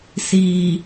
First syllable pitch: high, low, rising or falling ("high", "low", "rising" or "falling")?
low